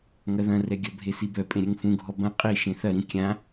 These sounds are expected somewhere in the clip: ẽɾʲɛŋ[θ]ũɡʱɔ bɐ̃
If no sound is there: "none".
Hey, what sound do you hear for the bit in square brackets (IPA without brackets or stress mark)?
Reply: f